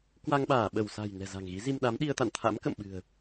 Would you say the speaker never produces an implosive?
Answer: no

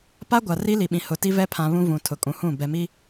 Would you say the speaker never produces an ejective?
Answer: no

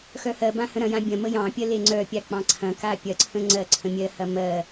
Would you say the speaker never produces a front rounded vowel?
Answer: no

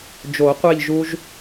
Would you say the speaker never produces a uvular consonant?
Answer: no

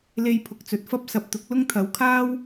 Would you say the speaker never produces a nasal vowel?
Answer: yes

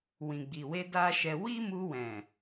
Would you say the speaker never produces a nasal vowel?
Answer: no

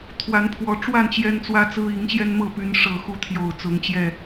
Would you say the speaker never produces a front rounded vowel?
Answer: no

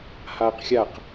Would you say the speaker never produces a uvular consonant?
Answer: no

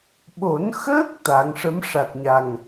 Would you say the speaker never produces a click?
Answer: yes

